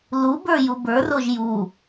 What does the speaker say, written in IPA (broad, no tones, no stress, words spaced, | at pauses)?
lubə˞ jubə˞roʒ ju